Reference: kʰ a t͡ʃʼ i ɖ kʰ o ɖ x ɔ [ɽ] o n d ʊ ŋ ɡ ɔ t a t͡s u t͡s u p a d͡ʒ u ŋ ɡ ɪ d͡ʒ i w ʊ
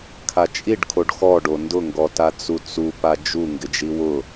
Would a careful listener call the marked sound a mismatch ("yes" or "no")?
yes